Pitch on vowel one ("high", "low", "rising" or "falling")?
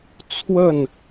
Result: falling